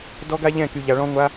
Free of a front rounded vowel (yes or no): no